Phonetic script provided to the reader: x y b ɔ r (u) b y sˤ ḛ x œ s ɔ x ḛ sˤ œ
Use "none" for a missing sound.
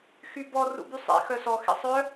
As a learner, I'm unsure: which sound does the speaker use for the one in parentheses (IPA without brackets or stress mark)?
ṵ